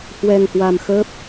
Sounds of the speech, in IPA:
h w ɛ˧ ŋ h w a˧ m x əː˦˥ p̚

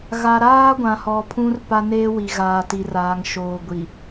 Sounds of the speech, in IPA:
ɣ a˨ ɾ aː˦ ɡʷ ã˨ h ɔ˨ pʰ ũ˦ r p a˦ n eː˦ w i˨ ɣ aː˨ t i˨ r aː˨ ŋ ʃ oː˨ ɡʷ i˨

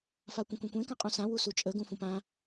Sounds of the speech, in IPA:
f a kʷ ə̃ kʷ ẽ kʷ ẽ k ã qʼ ũ s ã w u s u t͡ʃʼ ə ɡ ũ f ũ p ã

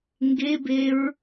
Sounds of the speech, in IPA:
ŋ ɡ e b e ɹ

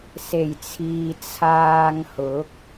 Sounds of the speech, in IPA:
s e˨˩ j t͡sʰ iː˨ t͡sʰ aː˧ ŋ h ʊ˨˥ k̚

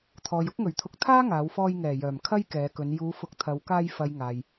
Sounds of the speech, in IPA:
t̪ʰ ɔː˨ j ʊ˥ k̚ ŋ ɵ˨˩ ɥ t̪ʰ ʊ˧ k̚ t̪ʰ aː˥ ŋ aː˨˧ w f ɔː˧ j ŋ ɛː˨˩ j œː˨˩ m kʰ ɐ˥ j k ɛː˨˧ k ɵ˨˧ n j uː˨˧ f ʊ˨ k̚ t̪ʰ ɐ˨˧ w k aː˧ j f ɐ˨ j ŋ aː˨ j

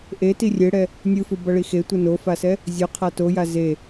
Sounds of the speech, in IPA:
ʔ e t i rʲ e ɽ ɛ | nʲ ɯ f ɯ b ʌ ɭ i x e tʷ ɯ n o f a s ɛ | zʲ o qʰ a t o j a z e

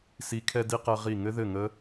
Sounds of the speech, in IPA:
s i˨˥ kʰ ɛ˧ d i˧ q ɛ˧ ʁ i˧˩ ŋ ɘ˦˥ ð ɘ˥˨ ŋ ə˦˥

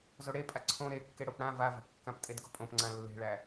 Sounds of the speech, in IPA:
z o ɽ e pʼ a ǀʰ õ ɾ e kː e ɽ o p ɽ ã v a v æ̤ p kː ã p tʼ e d ɡ o̤ pʼ õ p ŋ͡ǀ ã lː e̤ ɭ æ

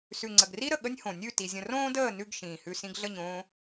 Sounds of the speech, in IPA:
s ʉ˨ ŋ͡ǀ ə˨ ɡ r i˦ ɾ ə˨ ɠ ə˦ nʲ h õ˨ nʲ ʉ˦˨ t i˨ zʲ ə̃˧ r õː˦ d əː˦˨ n ʉ˧ ɡ ʃ ĩː˨ h ʉ˧ s ĩ˧ ɡ ɮ ə˦˨ ɲ õː˦

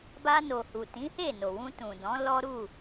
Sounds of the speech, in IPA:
b a˧ n o˨ h u˨ t ĩ˨˦ h e˦˨ n o˨ w ũ˧ t ũ˨ d ɔ̃˨˦ l ɔ˦ ɾ u˦˨

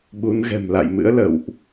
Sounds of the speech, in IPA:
ɓ u˨˦ n ɣ ɛ̤˨˩ m l a̰˧˨ j m ɨ̰˧˥ ə̯ l ə̰˧˨ w ʔ

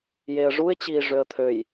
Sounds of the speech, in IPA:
j e ə̯ ʐ u ɪ̯ t͡ɕ iː ʐ ø ə̯ t̪ʰ ø j

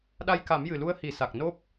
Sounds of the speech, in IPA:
ɗ a˧ j k a˨˩˦ m j ɨ˨˩ l u˧˥ ə̯ h i˨˩˦ s a˨˩ k̚ n o˦˥ p̚

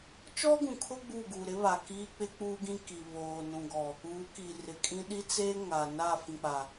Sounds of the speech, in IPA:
t͡ʃ ɔ˦ ɡ ũ˨ kʰ ʊ˦ ɡ͡b u˦˨ ɡ uː˨ ɾ ɪ˦ β a˨ k iː˦ k͡p ɪ˦ k͡p uː˦ ɡ ĩ˦ k i˨ β oː˨ n ũ˨ ɡ ɔ˨ | uː˨˦ k iː˨ r ɪ˨ kʼ ĩ˦ ɗ i˦ t͡s eː˦ ŋ aː˨ n aː˦˨ f ĩ˨ k͡p a˨

